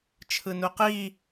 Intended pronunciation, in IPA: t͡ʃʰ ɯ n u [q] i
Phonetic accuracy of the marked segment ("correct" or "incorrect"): correct